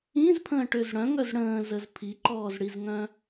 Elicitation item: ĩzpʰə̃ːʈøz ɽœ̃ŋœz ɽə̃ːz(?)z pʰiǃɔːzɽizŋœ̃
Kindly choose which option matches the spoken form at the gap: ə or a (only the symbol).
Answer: ə